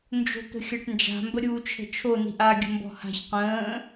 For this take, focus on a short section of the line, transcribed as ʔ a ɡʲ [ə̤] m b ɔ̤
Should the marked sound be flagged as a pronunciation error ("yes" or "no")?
no